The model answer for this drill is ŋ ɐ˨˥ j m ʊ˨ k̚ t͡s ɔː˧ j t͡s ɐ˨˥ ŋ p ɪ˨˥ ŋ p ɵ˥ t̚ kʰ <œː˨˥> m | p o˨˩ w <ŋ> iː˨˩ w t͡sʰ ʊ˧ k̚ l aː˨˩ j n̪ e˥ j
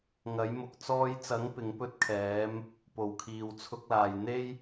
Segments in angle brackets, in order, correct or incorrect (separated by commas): incorrect, incorrect